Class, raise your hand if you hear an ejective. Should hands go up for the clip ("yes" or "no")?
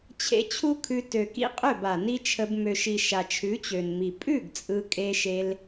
yes